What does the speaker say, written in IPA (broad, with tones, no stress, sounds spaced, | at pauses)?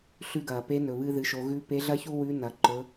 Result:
ɬ ʉ˧ ɡ ɐː˩ p e˧˥ n ɵ˩ β ɨː˧ ð ɨ˩˧ ʃ o˩˧ ɣ ʉ˧ p e˧˥ ɮ ɐ˥ ç u˥ w ʉ˧˥ n ɐ˩ ǃ ɵ˩˧